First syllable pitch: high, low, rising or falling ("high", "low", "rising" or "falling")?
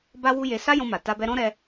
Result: high